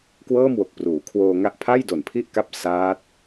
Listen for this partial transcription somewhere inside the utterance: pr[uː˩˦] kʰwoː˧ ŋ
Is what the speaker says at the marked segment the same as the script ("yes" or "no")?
yes